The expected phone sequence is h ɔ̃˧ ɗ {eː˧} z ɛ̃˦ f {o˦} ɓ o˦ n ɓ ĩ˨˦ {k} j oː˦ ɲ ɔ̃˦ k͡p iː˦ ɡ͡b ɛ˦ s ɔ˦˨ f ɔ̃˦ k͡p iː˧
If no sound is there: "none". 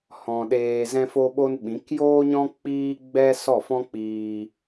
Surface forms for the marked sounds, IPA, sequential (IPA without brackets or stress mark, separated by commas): eː˧, o˦, k